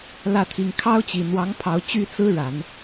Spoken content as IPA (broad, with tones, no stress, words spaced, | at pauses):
lä˥˩t̪ʰi˧˥ŋ kʰɑ˥ʊ̯t͡ɕi˨˩ n̪wɑ˧˥ŋpʰɑ˧˥ʊ̯ t͡ɕy˥t͡sɹ̩˥ ɻa˨˩˦n